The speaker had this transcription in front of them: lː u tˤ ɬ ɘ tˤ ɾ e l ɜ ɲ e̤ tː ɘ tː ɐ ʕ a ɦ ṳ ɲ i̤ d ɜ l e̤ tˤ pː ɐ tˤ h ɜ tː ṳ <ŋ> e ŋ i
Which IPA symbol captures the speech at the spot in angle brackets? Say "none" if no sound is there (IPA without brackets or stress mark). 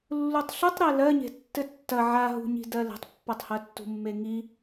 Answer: mː